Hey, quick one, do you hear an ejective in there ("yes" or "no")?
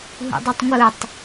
no